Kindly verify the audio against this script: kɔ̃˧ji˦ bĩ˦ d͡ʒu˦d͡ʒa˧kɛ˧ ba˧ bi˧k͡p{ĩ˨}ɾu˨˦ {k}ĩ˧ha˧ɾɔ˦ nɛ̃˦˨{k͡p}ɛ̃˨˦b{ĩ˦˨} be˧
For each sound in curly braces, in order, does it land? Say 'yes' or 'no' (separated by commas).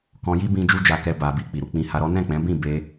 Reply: no, no, yes, yes